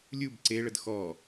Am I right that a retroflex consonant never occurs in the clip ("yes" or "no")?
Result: no